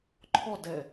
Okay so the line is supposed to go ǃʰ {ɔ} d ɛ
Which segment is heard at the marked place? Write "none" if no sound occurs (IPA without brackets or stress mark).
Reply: ɔ